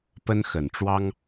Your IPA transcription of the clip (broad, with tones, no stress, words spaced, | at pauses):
pə˦nxə˨˩nʈ͡ʂwɑ˦ŋ